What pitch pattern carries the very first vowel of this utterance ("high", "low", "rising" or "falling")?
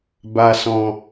low